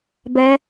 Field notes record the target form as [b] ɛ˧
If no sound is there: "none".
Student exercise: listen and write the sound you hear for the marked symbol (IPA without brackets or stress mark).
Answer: b